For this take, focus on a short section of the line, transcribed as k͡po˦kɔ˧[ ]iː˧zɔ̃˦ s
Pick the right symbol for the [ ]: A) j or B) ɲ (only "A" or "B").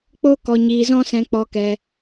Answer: B